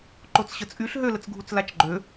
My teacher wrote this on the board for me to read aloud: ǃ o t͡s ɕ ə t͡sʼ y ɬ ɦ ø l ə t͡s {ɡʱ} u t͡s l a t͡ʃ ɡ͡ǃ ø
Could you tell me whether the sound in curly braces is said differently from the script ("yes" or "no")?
no